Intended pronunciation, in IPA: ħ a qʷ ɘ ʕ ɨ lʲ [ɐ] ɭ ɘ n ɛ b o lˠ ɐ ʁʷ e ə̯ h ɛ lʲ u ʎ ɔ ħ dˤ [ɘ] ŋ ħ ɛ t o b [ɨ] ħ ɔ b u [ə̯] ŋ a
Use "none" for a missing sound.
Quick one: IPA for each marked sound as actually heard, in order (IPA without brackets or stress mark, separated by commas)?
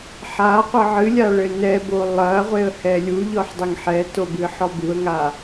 a, ɘ, ɨ, ə̯